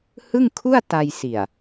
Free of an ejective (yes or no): yes